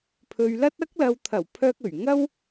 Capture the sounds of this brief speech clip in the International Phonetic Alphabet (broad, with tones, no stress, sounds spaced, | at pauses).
pʰ ɵ˨ ɥ l ɐ˥ t̚ ɐ˥ k̚ l ɐ˨ w t̪ʰ ɐ˨˩ w pʰ œː˧ k̚ ɵ˨˩ ɥ ŋ ɐ˥ w